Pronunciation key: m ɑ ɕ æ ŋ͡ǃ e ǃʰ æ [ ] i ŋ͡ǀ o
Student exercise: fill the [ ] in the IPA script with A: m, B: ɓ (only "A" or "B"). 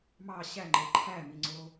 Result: A